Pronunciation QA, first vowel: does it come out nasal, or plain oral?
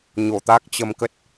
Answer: oral